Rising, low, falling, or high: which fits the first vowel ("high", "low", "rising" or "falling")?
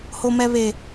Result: low